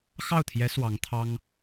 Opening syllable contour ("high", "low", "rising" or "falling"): falling